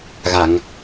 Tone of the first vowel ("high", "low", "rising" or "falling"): low